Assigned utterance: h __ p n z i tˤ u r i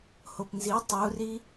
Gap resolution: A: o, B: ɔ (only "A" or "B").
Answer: A